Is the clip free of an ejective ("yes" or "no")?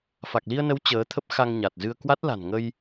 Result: yes